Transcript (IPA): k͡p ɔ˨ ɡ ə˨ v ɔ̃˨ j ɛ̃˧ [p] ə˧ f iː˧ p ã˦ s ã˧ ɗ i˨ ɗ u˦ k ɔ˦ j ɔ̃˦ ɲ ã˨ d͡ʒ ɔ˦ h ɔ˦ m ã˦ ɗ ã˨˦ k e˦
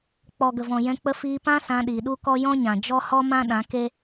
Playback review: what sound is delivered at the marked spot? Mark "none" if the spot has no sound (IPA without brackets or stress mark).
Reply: k͡p